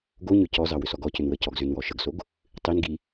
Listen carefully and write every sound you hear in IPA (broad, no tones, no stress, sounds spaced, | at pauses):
ɡ o ɲ ʏ c ɔ z ɑ w ʏ s ɔ ɡ ɔ c ʏ n w ə c ɔ ɡ z ʏ n w ɔ ʃ ə ɡ s o ɡ | tˤ i n ɡ i